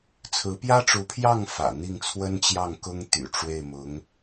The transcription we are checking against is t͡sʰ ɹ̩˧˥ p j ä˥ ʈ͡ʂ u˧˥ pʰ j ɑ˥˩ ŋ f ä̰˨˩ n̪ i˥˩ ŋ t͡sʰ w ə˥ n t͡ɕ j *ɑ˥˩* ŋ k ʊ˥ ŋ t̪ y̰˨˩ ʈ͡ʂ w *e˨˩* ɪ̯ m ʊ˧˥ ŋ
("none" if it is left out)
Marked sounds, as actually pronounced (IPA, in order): ɑ˥˩, e˥˩

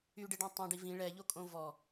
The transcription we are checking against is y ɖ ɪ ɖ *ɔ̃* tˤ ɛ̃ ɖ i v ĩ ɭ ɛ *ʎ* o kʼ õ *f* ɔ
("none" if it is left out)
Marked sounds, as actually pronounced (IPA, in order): õ, ʎ, v

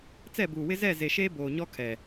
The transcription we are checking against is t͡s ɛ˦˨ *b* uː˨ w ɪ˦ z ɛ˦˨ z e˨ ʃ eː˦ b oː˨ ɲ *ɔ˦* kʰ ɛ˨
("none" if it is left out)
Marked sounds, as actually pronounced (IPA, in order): b, ɔ˦

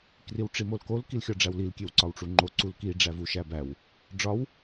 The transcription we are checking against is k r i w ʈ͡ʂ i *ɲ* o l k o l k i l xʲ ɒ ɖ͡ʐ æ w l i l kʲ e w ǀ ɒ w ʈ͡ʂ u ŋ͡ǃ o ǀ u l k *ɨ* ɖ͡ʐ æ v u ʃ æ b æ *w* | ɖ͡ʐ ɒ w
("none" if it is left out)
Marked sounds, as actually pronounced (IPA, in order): m, i, w

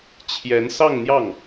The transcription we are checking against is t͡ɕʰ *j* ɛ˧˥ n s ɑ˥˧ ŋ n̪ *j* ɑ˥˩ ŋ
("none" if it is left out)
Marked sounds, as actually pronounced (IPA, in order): j, j

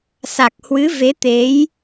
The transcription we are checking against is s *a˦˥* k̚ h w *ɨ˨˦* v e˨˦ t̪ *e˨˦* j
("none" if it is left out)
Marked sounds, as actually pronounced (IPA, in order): a˨˩, ɨ˨˦, e˨˦

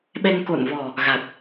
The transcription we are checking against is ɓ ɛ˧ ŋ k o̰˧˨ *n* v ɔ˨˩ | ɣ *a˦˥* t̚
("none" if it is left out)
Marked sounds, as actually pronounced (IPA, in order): n, a˨˩

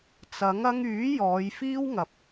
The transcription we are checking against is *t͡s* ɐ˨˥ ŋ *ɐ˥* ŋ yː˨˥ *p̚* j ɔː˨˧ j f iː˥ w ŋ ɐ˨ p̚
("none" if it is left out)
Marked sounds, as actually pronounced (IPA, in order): t͡s, ɐ˥, none

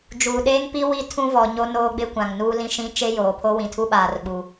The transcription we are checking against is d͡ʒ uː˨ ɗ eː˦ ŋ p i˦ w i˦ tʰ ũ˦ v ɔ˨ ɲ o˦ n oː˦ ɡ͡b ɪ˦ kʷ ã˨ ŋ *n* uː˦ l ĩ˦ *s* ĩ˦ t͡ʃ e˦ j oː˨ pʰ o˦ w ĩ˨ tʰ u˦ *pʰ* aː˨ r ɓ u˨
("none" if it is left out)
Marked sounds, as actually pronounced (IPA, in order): n, ʃ, ɓ

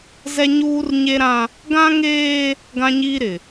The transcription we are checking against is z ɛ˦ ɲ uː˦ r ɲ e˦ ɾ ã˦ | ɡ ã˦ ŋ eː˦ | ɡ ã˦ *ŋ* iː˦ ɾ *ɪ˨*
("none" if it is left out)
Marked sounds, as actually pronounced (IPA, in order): ɲ, ɪ˨

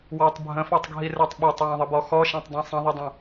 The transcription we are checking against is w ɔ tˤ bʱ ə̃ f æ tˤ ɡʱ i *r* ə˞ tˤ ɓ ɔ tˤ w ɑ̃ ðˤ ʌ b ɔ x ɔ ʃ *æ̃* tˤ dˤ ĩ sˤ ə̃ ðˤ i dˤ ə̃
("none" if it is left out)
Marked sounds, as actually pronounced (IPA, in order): r, æ̃

